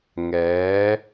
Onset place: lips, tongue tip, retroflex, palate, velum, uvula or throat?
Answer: velum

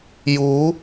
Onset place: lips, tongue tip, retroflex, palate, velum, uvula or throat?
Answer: palate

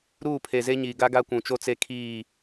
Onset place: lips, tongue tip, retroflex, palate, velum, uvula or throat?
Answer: tongue tip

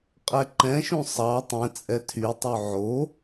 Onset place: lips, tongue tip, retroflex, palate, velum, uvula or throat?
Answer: uvula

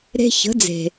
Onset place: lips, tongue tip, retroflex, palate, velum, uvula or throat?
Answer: tongue tip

